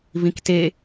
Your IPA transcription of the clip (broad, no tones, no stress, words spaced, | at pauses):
vĩkte